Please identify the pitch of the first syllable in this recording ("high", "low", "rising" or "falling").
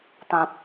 low